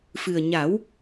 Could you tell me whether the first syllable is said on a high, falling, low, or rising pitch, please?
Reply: low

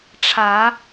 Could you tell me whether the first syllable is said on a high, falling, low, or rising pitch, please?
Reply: rising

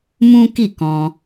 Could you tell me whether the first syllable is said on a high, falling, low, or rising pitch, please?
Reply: high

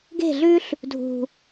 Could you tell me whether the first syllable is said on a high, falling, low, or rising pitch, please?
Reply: falling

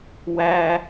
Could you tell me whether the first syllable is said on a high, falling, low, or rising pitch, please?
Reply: high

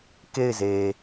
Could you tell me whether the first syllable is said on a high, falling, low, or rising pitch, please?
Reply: falling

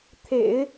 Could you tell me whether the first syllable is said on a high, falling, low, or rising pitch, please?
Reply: low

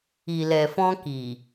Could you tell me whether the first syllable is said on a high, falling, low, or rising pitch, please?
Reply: low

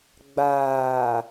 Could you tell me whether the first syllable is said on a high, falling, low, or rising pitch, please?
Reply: low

